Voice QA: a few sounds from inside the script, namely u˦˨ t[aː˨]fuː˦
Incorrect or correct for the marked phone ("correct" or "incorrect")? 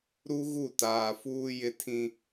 correct